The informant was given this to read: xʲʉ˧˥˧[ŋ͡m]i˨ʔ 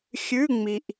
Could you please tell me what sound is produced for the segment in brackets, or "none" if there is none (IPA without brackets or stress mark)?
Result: ŋ͡m